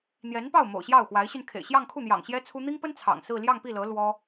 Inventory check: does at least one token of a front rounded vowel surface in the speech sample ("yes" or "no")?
yes